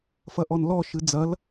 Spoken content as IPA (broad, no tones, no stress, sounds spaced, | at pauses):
f ɐ ʔ ɔ n l ɔ ʃ ɨ d͡z ɐ l